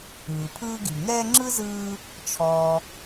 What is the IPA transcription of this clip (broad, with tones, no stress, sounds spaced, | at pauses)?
ɯː˩ pʰ ɯː˦ ɡ i˩ ŋ ɛː˦ ŋ͡ǁ ɯ˥ z ɯː˦ | t͡ʃʰ ɔː˨